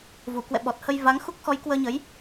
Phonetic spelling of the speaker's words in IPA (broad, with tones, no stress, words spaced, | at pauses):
vu˧˩ kwɛ̰˧˨ ɓɔ˨˩t̚ hə˧j va˨˦ŋxu˦˥k̚ xɔ˨˦jkwəː˧ɲə˨˦j